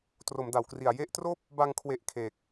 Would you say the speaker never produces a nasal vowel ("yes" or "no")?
yes